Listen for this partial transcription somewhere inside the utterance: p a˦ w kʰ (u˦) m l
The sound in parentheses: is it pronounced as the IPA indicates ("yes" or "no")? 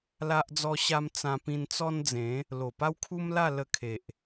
yes